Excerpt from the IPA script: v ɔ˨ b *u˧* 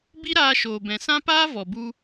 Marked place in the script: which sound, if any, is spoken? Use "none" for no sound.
u˧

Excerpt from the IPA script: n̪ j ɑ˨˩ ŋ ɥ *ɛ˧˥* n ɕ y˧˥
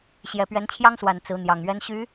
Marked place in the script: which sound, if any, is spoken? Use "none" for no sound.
ɛ˧˥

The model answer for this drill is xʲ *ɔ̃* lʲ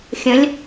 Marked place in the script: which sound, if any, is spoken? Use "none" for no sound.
ə̃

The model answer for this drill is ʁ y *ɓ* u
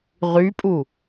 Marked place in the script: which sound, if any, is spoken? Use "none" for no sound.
pʼ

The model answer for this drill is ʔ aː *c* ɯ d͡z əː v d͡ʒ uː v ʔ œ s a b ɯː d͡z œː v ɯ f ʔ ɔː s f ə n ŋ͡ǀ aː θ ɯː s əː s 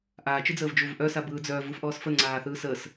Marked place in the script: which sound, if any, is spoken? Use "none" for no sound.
t͡ʃ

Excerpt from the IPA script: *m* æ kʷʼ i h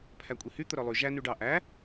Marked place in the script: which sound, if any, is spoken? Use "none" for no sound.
pʰ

